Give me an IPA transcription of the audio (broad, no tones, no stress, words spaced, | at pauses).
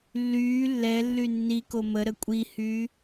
lːyː lːɛlːy nːiko mə ɾəkʷʼihyː